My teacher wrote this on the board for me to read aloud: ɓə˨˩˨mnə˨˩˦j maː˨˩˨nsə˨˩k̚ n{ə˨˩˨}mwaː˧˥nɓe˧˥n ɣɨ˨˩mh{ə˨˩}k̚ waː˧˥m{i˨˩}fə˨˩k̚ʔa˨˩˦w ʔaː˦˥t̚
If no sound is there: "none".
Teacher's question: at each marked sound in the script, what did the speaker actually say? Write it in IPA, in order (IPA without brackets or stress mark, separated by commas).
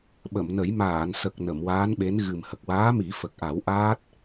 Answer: ə˨˩˨, ə˨˩, i˨˩˦